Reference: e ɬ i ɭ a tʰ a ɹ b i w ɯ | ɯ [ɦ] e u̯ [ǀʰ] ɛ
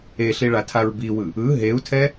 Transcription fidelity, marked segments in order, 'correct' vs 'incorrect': correct, incorrect: tʰ

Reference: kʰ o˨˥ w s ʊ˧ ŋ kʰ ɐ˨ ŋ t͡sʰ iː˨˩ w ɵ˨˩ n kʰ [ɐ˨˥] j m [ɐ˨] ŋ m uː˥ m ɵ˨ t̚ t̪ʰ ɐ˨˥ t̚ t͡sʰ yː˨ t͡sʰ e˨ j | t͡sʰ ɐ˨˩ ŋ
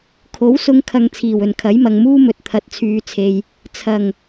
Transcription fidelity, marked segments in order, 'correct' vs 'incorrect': correct, correct

